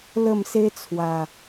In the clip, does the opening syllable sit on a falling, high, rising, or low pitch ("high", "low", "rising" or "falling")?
falling